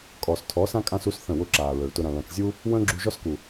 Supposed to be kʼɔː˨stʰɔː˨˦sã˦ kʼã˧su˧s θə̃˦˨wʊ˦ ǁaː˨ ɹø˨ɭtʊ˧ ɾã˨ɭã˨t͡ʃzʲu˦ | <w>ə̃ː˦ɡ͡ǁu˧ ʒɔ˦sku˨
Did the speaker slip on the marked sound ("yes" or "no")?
no